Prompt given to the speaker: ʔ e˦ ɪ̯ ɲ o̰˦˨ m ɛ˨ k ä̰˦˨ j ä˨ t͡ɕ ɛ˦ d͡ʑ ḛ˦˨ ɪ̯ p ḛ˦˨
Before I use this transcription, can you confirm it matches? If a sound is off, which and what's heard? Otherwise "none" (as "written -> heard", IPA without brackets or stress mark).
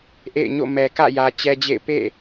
e˦ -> ḛ˦˨